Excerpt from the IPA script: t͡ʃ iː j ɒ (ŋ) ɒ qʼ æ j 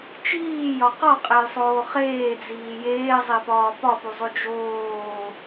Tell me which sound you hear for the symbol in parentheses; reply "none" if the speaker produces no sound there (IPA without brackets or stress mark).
q